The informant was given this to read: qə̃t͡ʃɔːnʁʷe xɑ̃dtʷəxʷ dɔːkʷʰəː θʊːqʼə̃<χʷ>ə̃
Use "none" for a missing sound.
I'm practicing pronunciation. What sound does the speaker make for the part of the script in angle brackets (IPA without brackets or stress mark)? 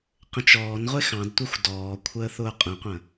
qʷ